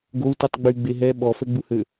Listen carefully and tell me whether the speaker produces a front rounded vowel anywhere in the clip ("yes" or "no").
yes